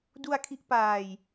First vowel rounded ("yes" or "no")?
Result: yes